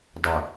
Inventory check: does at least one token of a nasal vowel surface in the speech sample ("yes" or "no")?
no